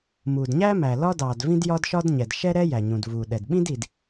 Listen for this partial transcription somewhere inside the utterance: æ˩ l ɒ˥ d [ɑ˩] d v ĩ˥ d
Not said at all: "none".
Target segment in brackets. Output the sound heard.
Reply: ɑː˩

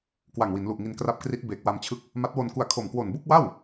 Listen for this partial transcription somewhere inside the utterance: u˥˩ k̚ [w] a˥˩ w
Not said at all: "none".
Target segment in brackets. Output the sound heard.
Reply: w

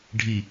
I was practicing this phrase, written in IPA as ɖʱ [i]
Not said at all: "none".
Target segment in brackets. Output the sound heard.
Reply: i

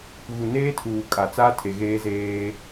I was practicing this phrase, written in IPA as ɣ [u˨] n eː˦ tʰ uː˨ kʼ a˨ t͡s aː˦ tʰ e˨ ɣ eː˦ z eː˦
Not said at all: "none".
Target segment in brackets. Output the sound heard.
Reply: u˨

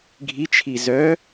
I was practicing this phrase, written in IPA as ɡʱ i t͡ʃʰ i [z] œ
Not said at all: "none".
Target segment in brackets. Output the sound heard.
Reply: z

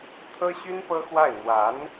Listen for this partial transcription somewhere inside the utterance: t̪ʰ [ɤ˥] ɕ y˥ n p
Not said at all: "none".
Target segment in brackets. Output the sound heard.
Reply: ɤ˥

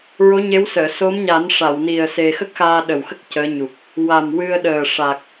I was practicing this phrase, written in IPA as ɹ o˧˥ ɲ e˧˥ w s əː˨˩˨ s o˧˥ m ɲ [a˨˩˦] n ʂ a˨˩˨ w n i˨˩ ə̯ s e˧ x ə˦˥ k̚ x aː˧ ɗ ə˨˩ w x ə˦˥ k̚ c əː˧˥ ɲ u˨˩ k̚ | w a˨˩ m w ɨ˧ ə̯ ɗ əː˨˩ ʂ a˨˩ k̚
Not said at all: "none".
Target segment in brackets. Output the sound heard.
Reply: a˨˩˦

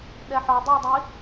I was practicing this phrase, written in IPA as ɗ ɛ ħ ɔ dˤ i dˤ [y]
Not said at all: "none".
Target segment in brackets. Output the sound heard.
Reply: i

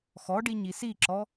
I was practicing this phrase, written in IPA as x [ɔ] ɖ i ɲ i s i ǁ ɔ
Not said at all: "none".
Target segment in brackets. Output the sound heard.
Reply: ɔ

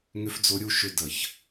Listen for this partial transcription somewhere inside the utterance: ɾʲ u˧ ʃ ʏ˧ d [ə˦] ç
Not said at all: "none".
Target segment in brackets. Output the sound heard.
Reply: ə˨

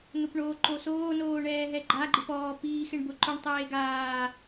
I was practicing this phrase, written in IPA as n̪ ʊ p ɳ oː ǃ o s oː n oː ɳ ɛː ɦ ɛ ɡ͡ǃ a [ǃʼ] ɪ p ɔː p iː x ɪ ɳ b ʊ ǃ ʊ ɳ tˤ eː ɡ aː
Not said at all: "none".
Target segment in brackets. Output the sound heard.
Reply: ɡ͡ǃ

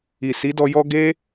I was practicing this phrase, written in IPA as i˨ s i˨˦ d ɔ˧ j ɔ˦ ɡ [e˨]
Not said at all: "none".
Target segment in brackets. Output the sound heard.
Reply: e˦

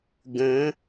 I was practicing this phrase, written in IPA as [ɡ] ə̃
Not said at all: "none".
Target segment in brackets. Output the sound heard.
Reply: ɡ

